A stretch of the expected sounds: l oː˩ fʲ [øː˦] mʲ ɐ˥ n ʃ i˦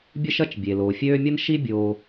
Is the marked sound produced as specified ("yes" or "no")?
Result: yes